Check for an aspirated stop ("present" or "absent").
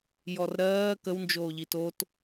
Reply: absent